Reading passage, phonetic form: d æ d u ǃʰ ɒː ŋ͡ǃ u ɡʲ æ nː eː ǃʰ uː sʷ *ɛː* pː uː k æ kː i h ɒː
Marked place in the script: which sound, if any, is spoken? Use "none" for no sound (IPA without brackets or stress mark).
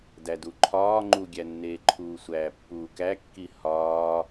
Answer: æː